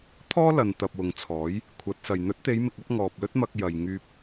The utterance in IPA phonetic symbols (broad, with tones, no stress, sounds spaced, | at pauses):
t̪ʰ ɔː˥ l ɐ˨ n t̪ ɐ˨ p̚ w ʊ˨ ŋ t͡sʰ ɔː˨˥ j | kʷʰ ɐ˨˥ t̚ s ɐ˨ j n̪ ɵ˨˥ t̚ t̪ e˨˧ j m ɪ˨ k̚ ɐ˨˥ p̚ ŋ ɔː˨ p̚ l ɵ˥ t̚ m ɐ˧ k̚ j ɐ˨ j ŋ yː˧ p̚